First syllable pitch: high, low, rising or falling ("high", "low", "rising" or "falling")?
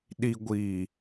low